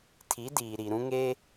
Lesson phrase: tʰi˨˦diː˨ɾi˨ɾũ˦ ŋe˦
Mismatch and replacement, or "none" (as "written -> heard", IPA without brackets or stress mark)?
none